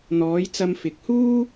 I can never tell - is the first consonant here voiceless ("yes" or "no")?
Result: no